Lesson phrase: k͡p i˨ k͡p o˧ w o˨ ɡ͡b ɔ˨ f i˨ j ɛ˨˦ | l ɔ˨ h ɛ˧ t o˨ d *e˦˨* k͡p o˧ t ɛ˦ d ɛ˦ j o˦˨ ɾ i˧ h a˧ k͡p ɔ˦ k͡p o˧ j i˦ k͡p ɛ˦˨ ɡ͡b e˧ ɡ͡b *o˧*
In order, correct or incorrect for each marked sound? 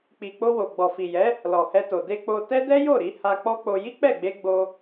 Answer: incorrect: e˧, correct

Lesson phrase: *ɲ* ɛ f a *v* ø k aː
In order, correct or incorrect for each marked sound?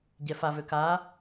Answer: incorrect: ɟ, correct

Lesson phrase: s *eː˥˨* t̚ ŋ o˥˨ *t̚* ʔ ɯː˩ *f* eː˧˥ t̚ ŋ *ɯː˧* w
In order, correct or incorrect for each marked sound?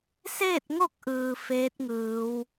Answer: correct, incorrect: k̚, correct, incorrect: ɯː˩˧

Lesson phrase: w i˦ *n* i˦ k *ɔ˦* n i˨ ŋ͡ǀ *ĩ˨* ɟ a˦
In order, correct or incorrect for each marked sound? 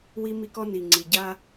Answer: incorrect: m, correct, incorrect: i˨

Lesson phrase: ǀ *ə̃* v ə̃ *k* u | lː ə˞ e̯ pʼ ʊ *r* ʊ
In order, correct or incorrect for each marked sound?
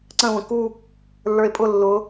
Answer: correct, correct, incorrect: lː

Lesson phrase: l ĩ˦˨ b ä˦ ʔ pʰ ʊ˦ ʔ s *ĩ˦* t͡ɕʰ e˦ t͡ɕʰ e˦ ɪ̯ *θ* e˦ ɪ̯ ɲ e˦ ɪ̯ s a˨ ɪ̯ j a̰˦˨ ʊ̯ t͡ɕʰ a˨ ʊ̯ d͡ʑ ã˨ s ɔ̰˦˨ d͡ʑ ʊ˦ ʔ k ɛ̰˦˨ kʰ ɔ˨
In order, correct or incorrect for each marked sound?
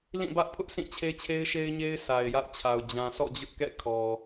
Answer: incorrect: ĩ˦˨, incorrect: ʃ

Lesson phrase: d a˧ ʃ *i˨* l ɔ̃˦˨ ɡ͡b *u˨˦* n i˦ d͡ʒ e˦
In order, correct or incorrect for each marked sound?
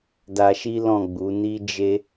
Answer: incorrect: i˦, correct

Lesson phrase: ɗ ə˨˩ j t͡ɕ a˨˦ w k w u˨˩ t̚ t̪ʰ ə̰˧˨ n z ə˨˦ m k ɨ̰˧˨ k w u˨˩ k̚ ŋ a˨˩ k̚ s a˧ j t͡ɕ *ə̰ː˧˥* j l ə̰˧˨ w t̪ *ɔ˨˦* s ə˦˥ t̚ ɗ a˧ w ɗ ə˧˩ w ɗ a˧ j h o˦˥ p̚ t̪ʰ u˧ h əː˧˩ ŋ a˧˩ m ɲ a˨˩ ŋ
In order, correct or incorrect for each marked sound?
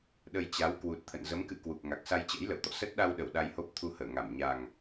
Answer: correct, incorrect: ɔ̰˧˨

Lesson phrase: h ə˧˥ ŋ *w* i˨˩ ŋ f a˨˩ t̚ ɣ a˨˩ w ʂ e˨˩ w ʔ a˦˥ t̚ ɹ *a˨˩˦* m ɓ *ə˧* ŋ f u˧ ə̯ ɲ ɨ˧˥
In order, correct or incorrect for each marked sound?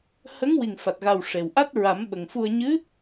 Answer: correct, correct, incorrect: ə˨˩

